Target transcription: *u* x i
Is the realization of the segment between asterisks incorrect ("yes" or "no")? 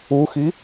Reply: no